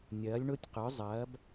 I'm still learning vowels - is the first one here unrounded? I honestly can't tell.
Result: yes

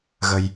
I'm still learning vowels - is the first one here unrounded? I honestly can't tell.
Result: yes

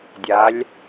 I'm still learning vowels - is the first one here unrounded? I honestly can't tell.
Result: yes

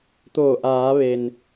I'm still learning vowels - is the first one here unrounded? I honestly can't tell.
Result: no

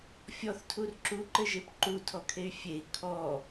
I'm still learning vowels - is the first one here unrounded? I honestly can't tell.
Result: no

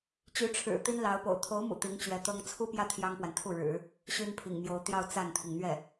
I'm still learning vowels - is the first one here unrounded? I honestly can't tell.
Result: no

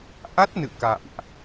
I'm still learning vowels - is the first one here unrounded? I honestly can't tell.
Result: yes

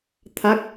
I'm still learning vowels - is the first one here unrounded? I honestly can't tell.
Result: yes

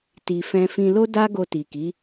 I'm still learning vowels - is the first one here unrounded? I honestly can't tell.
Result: yes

